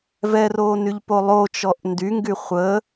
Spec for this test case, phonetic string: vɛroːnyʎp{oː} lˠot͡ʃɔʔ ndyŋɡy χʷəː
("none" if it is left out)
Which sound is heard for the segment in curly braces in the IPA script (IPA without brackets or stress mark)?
o